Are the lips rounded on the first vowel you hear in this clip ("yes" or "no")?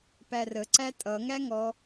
no